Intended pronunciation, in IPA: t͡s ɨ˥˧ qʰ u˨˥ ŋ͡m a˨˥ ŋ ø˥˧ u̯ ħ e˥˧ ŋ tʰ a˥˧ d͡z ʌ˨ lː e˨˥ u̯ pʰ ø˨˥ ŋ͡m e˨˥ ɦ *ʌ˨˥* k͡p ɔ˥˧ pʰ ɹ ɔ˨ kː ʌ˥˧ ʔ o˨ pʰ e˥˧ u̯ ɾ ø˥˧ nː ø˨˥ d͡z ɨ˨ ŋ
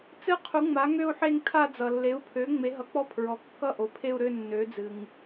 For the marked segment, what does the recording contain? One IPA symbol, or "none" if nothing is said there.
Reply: ʌ˨˥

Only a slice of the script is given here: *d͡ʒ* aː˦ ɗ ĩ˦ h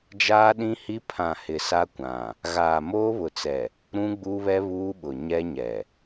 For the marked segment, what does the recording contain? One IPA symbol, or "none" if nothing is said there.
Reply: d͡ʒ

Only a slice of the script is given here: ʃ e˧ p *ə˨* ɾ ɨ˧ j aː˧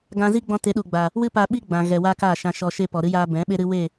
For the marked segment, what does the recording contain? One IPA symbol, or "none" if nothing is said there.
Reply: ɔ˨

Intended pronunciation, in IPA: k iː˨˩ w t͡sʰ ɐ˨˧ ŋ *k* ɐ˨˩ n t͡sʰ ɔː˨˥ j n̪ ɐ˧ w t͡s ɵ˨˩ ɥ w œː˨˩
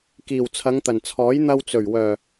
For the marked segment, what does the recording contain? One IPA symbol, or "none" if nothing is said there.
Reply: t̪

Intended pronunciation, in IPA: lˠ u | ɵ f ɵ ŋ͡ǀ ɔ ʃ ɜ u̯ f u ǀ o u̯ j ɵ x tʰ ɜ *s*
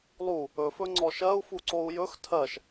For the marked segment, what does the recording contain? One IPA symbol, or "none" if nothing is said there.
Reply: ʃ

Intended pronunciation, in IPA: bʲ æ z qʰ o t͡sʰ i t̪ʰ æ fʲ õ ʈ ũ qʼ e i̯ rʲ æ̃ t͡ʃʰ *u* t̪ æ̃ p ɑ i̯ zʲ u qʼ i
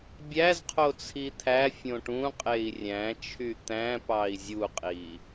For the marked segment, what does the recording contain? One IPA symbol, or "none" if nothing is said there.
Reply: y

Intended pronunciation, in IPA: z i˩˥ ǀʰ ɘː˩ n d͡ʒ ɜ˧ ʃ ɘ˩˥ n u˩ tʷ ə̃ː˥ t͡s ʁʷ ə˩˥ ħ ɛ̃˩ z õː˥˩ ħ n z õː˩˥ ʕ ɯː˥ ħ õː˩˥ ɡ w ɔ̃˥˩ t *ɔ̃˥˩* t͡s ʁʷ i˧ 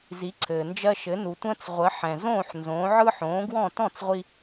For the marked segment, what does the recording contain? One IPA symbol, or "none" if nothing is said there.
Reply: ɔ̃˥˩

